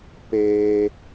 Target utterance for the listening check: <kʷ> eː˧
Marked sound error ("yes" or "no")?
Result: yes